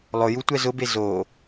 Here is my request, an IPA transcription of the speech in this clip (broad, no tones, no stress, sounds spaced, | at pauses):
lˠ ʊ j u tʷ ɛ z ʊ b e z o